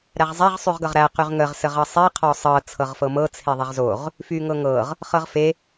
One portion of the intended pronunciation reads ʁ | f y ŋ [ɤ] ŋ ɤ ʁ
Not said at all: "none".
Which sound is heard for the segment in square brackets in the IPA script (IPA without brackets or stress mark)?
ɤ